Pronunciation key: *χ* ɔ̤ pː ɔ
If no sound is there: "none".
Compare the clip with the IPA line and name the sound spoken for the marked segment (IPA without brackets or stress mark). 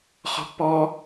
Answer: χ